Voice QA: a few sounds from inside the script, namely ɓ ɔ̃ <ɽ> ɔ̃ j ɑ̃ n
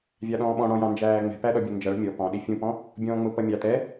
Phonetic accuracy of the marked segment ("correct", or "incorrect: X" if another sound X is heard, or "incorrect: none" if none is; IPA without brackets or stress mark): correct